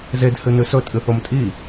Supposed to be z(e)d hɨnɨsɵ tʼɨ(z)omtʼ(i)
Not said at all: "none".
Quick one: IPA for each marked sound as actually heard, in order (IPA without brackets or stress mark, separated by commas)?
e, θ, i